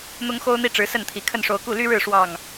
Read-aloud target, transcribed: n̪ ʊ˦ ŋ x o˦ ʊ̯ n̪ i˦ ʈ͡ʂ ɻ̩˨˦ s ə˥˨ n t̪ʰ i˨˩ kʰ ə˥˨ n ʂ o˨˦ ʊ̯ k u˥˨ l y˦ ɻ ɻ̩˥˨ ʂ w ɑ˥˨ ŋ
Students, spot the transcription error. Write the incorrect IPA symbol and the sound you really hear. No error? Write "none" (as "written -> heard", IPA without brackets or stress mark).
none